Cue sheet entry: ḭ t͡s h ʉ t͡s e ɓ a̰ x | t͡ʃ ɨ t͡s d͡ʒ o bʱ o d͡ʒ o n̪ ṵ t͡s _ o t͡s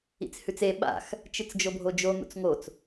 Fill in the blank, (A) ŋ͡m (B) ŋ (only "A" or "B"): B